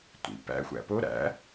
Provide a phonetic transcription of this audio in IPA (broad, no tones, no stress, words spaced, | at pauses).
tʷḭ pæ̰xʷæ̰ po ɾæ̰